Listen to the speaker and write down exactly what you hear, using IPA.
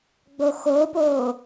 ɡ͡b o x oː p oː

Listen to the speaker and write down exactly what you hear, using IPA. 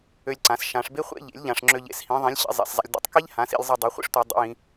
ø˧ lʲ ǀ ã˩˧ s ʃ ã˩˧ ʂ b e˥ χʷ ḛ˥ ʎ ḛ˩˥ lʲ ʎ ã˩˧ ʂ ŋ͡ǁ ø˧ ʎ ḛ˩˥ s h ĩ˩˥ ðˤ ĩ˩˥ lʲ ɕ ḭ˩˧ zˤ ḛ˩˧ s zˤ a̰˧ lʲ d ḛ˧ tˤ k i˥ ʎ h ã˩˥ s ḭ˧ lʲ zˤ i˧ dˤ e˩˥ χʷ ḭ˥ ʂ tʷ i˩˧ dˤ ḭ˩˧ j ĩ˩˧

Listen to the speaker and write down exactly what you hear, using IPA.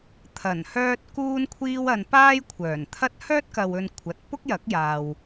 t̪ʰ ɐ˨˩ n h œː˧ t̚ k uː˧ n kʷʰ iː˧ w ɐ˨ n p aː˥ j kʷʰ œː˨˩ n t̪ʰ ɐ˥ t̚ h œː˥ t̚ k ɐ˨ w ɵ˨ n kʷʰ ɐ˨ t̚ p ʊ˥ k̚ j ɐ˨˥ k̚ j aː˨ w

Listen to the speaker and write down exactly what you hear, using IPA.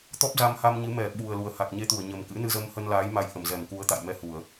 t̪ ɔ˦˥ p̚ z a˧ m h a˧ m ɲ ɨ˨˦ m ɛ˧˩ ɓ u˨˩ ə̯ l u˨˩ ə̯ h a˨˩ k̚ ɲ e˧ t̪ u˧˩ ə̯ ɲ ə˨˩ m k ɨ̰˧˥ n ɨ˧ z ə˧ m h ə˧ n l aː˨˦ j m a˧ j ʔ ə˧˩ m z ɛ˧˩ m k u˨˦ ə̯ t̪ a̰˧˨ j m ɛ˧ h u˧˩˨ ə̯

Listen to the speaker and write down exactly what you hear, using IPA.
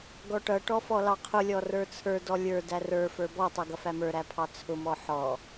ɡ ɔ ʈ ʌ ʈ ɔ f ɔ l ɑ qʰ ʊ lʲ ɔ r ə˞ t͡sʰ ə˞ d ɔ lʲ ə˞ d æ r ə˞ f ə˞ b ɔ tˤ ʌ ɡ ʌ f æ m ə˞ ɾ æ pʰ ɑ t͡sʰ ʊ m ɔ ħ ɔ

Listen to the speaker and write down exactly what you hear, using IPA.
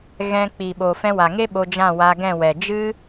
ɣ ɛ̃˧ k͡p i˨ ɓ o˨ f ɛ̃˧ w a˨ ŋ e˦ ɓ o˧ d͡ʒ ã˦˨ w a˧ ɡ ɛ̃˦˨ w ɛ˨ d͡ʒ ɨ˦

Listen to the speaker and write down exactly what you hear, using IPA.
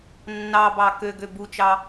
nː ɑ b ɑ k ø ɡ ø b u t͡ʃ ɑ

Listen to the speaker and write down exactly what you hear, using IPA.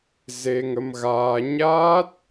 z e˧ ŋ ə˧ m ɣ aː˧ ɲ aː˦˥ t̚

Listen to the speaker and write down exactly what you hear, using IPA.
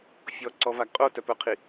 fʲ ɔ ǀ ɔ v a ɡ qʼ o t œ p œ qʰ i

